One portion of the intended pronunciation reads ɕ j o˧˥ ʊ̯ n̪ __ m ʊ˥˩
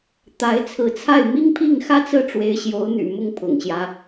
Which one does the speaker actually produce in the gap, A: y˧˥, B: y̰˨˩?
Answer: B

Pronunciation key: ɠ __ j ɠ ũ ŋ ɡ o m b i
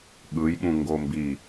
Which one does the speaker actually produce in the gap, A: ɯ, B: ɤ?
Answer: A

